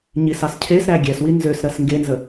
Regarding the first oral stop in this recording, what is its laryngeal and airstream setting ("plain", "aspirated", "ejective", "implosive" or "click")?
aspirated